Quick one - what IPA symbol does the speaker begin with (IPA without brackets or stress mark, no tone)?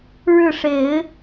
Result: ɻ